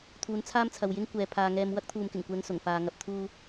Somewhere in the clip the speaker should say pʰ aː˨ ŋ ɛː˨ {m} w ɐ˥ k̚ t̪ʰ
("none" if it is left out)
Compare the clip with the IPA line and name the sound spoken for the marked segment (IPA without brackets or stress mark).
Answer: m